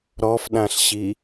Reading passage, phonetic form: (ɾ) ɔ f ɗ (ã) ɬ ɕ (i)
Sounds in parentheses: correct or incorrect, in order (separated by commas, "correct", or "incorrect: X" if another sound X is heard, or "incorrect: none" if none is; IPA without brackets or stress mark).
correct, correct, correct